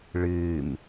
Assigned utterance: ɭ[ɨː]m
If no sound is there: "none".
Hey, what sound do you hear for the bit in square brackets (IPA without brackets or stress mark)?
ɨː